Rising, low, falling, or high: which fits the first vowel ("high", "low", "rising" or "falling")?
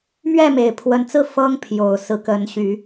falling